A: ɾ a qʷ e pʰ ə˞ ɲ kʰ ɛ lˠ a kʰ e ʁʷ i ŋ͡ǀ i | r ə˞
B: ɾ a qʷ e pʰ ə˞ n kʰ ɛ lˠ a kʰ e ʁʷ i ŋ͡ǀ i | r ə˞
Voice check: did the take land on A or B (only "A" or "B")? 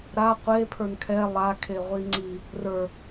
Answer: B